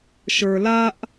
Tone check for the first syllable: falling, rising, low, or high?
low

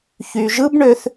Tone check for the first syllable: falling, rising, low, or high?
low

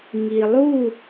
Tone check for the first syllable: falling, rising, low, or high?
low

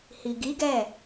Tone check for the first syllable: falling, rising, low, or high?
low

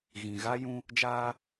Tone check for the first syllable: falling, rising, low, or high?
low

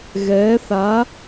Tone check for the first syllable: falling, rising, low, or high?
rising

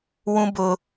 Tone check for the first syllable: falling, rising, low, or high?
high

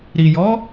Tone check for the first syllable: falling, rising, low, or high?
low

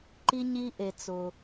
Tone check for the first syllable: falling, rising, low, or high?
high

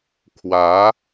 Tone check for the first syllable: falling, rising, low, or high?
rising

